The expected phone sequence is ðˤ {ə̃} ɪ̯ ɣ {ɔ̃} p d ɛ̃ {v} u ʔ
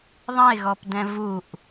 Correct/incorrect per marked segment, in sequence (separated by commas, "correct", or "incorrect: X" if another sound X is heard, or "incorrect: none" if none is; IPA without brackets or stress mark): incorrect: ɐ̃, incorrect: ɔ, correct